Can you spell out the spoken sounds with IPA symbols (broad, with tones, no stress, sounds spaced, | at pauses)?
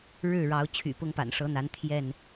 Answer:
ɻ ɻ̩˥˨ ɻ ɑ˨˦ ʊ̯ t͡ɕʰ y̰˨˩ p ʊ˦ ŋ p a̰˨˩ n ʂ ɤ˨˦ n̪ a˨˦ n t̪ʰ j ɛ˥˨ n